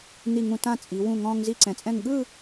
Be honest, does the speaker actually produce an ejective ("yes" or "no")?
yes